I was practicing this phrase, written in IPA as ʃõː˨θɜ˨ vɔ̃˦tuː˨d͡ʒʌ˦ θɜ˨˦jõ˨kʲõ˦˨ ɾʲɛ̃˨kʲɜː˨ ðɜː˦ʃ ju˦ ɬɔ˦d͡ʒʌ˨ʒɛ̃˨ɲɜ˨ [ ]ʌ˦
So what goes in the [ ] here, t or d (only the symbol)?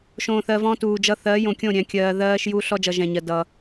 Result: d